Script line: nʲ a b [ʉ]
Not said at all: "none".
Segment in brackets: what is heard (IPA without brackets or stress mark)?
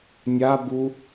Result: u